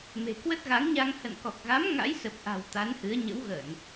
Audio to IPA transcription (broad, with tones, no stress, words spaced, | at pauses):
me̤˨˩kwə˦˥t̚ɣa˨˦ŋɲa˧ŋ hə̰˧˨nkɔ˨˩k̚ɣa˨˦m ŋa̰˧˥jsə˨˩p̚ʔa̤˨˩w t̪a˨˦nhɨ˨˦ə̯ ɲə̰˧˥wɣəː˧˩˨n